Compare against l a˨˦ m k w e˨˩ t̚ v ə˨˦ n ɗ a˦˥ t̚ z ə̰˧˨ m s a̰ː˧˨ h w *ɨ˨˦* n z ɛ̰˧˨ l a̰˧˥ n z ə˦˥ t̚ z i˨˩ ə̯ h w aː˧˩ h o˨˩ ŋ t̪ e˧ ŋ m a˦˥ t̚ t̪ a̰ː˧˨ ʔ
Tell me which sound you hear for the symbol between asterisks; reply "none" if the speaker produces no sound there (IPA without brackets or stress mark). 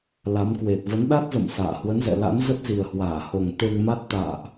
ə˨˦